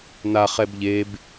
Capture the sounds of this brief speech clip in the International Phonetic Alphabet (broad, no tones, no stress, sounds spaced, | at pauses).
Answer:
n a χ ɛ b ʎ e b